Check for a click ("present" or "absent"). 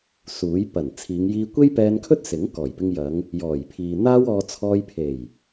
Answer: absent